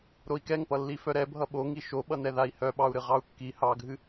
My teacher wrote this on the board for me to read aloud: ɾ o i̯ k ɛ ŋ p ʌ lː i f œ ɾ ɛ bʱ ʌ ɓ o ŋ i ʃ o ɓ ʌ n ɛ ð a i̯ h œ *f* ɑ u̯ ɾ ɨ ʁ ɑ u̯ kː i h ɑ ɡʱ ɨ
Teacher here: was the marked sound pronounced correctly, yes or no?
no